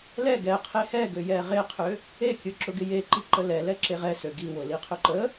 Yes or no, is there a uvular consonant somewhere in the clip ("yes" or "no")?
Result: yes